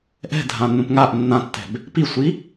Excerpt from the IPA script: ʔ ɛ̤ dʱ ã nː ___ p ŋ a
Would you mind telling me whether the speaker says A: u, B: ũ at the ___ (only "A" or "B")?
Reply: B